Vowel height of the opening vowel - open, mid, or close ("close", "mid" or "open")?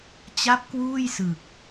open